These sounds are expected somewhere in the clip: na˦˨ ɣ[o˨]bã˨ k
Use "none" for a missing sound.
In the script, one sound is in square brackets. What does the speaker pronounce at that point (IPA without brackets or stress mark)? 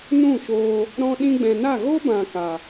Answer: o˦